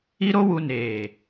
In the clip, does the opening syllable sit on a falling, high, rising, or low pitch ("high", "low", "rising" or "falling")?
high